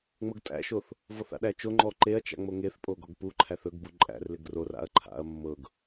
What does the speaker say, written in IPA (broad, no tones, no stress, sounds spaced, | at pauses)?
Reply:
ŋ͡m ɤ ɡ tʼ æ̰ ʃ o θ | v ɔ θ a̰ ɗ æ t͡ʃ o ŋ͡ǃ ɔ ǃ e ɐ̯ t͡ʃ a̰ ŋ͡m o ŋ e θ pʼ o ɡ ɔ ɡ p u ǃʰ æ θ ɵ ɡ b u ǃʼ æ̰ r l ɪ ɡ r o r a̰ ɐ̯ ǃʰ a̰ ɐ̯ mː ɤ ɡ